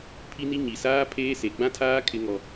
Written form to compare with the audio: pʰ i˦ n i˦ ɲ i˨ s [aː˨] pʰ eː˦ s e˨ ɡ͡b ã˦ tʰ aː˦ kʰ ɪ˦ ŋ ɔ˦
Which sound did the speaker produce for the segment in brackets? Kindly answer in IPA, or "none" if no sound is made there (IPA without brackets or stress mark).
aː˦